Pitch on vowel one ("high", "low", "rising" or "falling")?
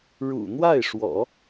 low